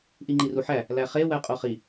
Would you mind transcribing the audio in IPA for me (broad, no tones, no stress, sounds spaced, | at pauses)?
ʔ i ŋ͡ǃ i r u ħ æ | l æ χ e w æ qʼ o χ i